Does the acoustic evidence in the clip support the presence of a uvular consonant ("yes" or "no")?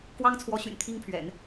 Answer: no